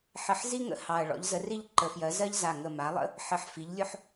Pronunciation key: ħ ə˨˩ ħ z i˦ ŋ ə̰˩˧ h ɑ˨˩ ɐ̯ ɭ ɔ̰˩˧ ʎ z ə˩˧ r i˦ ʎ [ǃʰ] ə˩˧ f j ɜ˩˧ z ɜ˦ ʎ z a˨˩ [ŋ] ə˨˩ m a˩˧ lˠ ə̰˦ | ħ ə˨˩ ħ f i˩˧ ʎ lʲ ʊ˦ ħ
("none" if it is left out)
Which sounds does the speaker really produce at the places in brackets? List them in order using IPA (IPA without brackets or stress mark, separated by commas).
ǃ, ŋ